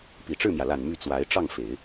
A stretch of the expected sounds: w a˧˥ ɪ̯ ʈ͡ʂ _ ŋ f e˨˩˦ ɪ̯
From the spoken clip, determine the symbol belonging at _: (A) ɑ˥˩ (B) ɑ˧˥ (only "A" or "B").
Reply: A